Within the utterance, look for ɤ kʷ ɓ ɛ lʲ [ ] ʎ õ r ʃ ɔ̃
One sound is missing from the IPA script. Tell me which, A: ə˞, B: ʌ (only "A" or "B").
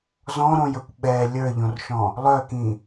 A